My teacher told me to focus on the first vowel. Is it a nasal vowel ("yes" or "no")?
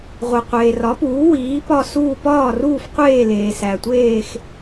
no